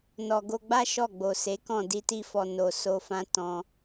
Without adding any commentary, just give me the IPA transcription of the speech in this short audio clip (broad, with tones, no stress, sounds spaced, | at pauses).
n ɔ˨ ɡ o˧ ɡ͡b a˦ ʃ ɔ˦˨ ɡ͡b o˨ s e˨˦ k ɔ̃˦˨ d i˧ t i˧ f ɔ˨ n o˨ s o˧ f ã˦ t ɔ̃˦